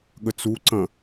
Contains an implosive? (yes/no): yes